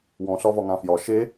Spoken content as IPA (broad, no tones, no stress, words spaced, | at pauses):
wɔ̃ɬɒ vɒŋãfjɒ ʃe